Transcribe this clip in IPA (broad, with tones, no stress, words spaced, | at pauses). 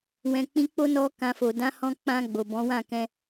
wɛ̃˨k͡pĩ˧k͡po˦ nɔ˦kã˧fo˨ dã˨˦hɔ̃˧k͡pã˧ ɡ͡bo˨bɔ̃˨˦ wã˦˨kɛ̃˧